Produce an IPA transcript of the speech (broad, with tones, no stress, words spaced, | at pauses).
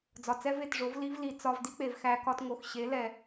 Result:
d͡zɒ˨t͡sɛ˦ve˦˨tʐo˨˦v li˦vli˨ t͡sɒ˧vdi˦k͡pe˨v xæ˧kɒ˧tŋo˨x ɕe˨˦lɛ˨